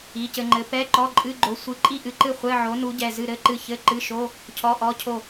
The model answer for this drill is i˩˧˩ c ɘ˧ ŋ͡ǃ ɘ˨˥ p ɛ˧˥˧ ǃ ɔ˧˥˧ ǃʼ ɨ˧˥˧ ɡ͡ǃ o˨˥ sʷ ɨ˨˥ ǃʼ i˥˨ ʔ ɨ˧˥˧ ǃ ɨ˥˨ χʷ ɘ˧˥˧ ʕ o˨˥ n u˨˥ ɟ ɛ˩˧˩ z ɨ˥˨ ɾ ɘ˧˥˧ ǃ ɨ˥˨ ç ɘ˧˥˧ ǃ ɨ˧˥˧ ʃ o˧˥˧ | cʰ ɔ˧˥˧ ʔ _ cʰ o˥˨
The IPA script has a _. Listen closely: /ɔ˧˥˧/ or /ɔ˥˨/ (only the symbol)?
ɔ˧˥˧